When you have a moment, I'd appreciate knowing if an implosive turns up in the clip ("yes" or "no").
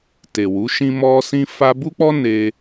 no